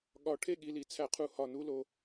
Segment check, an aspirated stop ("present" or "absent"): present